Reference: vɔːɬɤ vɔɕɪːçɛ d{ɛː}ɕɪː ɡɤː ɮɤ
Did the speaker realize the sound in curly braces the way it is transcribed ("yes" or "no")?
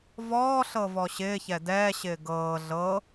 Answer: yes